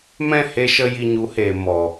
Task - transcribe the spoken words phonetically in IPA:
m ɛ̃˦˨ h e˧ ʃ ə˧ j i˧ ɲ u˨˦ h eː˨ m ɔ˨

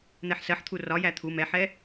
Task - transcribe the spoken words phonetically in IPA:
n̪ ɛ ħ s ɜ ħ t̪ʰ u r ɒ j æ t̪ʰ u m ɛ ħ ɛ

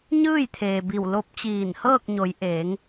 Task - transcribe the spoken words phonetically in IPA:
ɲ ɯː˥˨ j t̪ʰ eː˩ b i˧˩ w l o˧˥ p̚ t͡ɕ iː˧˩ n h ɤː˥˨ k̚ ɲ o˩˧ j ʔ eː˩˧ ŋ

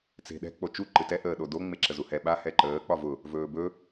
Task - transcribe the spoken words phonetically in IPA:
t͡s e̤ ɗ ɛ̤ k͡p o t͡ʃ u ǃ ɨ t ɛ ʔ əː ɗ o d o ŋ͡m e ǁ ə z u h ɛ ɓ a h ɛ ǃ əː k͡p ɒ v ʊ | v ɵː b ɵ

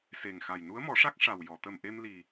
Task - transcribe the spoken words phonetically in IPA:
s e˨˩ ŋ x a˨˩ j n u˧˥ ə̯ m ɔ˨˩˦ ʂ a˦˥ k̚ ʂ a˨˩ w j ɔ˨˩˨ t̪ ə˨˩ m ʔ e˧ m l i˨˩

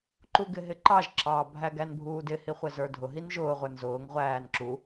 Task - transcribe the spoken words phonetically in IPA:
ǃ u ɡ ɪ ɦ ɪ ǃ ɑ ʒ ǁ ɑ bʱ æ ɡ æ n bʱ uː d ɪ h i χʷ ɪ z ə˞ dʱ ʊ ɦ i n ʒ ʊː ʁʷ ə˞ n z ʊː ŋ ʁʷ æː n ǁ u

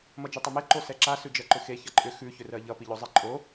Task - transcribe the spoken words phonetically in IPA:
m ʌ d͡ʒ ʉ tˤ ʌ m e ǃ o s ɛ ǁ a s ʉ d͡ʒ ɜ ǃ ʏ x e ç ʌ ǃʼ ʏ x ʉ ç ʏ r ɜ ʎ ʌ p i ʎ o zˤ e ǃʼ o

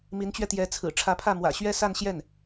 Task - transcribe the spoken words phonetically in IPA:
m i˧˥ n t͡ɕ ɥ ɛ˧ t̪ j ɛ˧˥ t͡sʰ ɹ̩˨˩ ʈ͡ʂʰ ä˧˥ pʰ ä˥˩ m w ä̰˨˩ ɕ ɥ ɛ˥ s a˥˧ n ɕ j ɛ˥˩ n

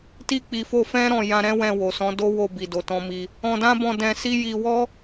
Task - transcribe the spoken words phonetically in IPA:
t i˧ k͡p i˨ f o˧ f ɛ̃˦ ɾ ɔ̃˦˨ j ã˧ ɾ ɛ̃˦ w ɛ̃˦˨ w o˨ s ɔ̃˨˦ d o˦ w o˦˨ b i˨ d o˨ t ɔ̃˧ m i˧ | ɔ̃˧ d ã˦ b ɔ̃˦˨ d ɛ̃˧ s i˦ j i˧ w ɔ˦

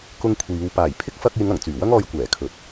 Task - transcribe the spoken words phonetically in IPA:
k ʊ˧ ŋ kʷʰ iː˨˧ w p aː˨˩ j pʰ ɪ˥ k̚ f ɐ˧ k̚ j ɪ˨˧ ŋ ɐ˨˩ ŋ t͡s yː˨˩ w ɐ˥ ŋ ɔː˧ j kʷ ɛː˨˩ kʰ ɵ˨ t̚

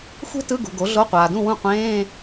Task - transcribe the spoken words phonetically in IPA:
xʷ e̤˥ t ɯ˧˥˧ ɡ ṳ˨ ɡ o˩˥ ɮ o˧˥˧ qʷ aː˨ d ũ˥˨ w ũ˥˨ qʷ ẽː˧˥˧

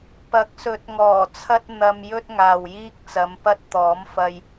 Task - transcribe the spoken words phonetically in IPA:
p ɐ˨˥ k̚ s ɵ˨˥ t̚ ŋ ɔː˨˩ t͡sʰ ɐ˥ t̚ n̪ ɐ˧ m j ɵ˥ t̚ ŋ aː˨ w j iː˥ k̚ t͡s ɐ˨˧ m p ɐ˥ t̚ t̪ ɔː˨˥ m f ɐ˧ j

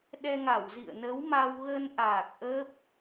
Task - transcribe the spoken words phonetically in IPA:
ɗ ɛ˧ ŋ a˧˩ w z ḭ˧˨ ə̯ n ə˨˦ w m a˧ w ɣ ə˧ n ʔ aː˨˩ k̚ ʔ ə˦˥ p̚

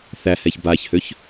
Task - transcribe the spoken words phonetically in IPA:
θ æ h ɛ ç b a ç h ø ç

